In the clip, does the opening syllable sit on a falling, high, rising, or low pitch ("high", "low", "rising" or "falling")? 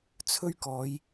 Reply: high